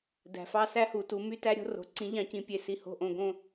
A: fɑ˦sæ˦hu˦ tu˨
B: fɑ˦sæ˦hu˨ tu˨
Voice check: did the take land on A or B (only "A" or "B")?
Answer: B